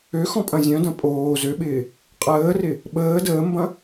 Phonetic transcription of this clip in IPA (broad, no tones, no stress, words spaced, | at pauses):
ø xɔ̃pʼɐ̃zʲœ̃dɐ̃ pʼoː zøɓɪː | qʼəːrɪ | ɓəː dəːmbɐ̃